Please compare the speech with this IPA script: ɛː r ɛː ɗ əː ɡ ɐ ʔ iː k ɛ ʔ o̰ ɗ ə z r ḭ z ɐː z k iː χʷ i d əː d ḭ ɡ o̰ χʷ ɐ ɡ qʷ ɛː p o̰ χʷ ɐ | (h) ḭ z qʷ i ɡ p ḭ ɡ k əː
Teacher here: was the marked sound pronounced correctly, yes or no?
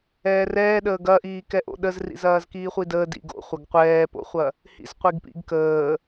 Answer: yes